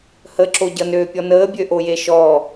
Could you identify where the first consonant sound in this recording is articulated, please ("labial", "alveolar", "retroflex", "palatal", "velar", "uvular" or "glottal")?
glottal